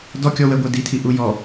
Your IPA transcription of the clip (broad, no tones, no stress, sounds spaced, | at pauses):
d ɔ kʲ ɔ w ɛ ɡʷ æ d i tʰ i ʔ u j ɔ